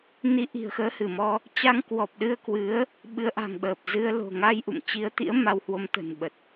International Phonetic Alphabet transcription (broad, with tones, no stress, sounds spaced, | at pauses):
n i˨˦ ʔ i̤˨˩ ə̯ x əː˨˦ h ɨ˧˩ m ɔ˧ | t͡ɕ a˧ ŋ k w ɔ˨˩ p̚ ɗ ɨ˧ ə̯ k w ɨ˨˦ ə̯ | ɓ ɨ˨˦ ə̯ ʔ a̤˨˩ ŋ ɓ əː˨˩ p̚ z ɨ˧ ə̯ l o̤˨˩ ŋ a˧ j ʔ ṵ˧˨ m t͡ɕ i˧ ə̯ t̪ ḭ˧˥ ə̯ m a˧ w h w o˧ m t̪ ə̤˨˩ n ɓ ə˨˩ t̚